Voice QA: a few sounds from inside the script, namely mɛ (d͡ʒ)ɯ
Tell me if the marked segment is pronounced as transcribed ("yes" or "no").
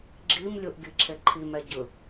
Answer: no